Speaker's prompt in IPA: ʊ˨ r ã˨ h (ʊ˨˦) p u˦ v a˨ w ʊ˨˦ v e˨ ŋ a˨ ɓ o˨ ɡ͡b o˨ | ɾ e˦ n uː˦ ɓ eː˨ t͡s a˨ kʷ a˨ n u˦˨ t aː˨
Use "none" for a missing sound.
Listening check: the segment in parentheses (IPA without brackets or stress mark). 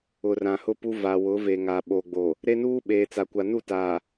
ʊ˦